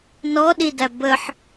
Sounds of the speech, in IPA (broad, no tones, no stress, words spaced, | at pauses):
nɔɗidæ bəħ